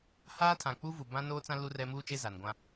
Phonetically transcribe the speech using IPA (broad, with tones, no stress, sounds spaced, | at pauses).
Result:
h aː˦ tʰ ã˨ k͡p uː˦ v u˨ b ã˦ n oː˦ t͡s ã˦ l u˦ r ɛ˦ m uː˦ t͡ʃ e˦ z a˨ n ɡʷ ã˦